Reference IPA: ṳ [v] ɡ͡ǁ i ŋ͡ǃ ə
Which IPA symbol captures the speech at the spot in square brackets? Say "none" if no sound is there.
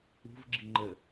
v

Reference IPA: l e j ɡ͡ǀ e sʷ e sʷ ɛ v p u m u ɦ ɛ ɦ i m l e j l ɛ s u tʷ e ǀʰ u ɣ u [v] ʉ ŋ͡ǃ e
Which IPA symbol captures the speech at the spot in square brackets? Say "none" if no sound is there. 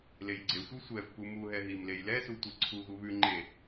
β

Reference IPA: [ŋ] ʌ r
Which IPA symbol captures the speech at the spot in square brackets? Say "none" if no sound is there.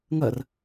ŋ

